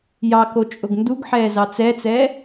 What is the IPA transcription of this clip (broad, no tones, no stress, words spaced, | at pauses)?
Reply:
jɑ kot͡ʃʼʊɡnduɡħɛː zɑt͡sɛt͡sɛ